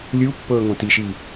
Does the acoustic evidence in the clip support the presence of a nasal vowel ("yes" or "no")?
yes